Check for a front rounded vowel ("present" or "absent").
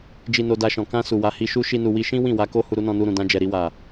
absent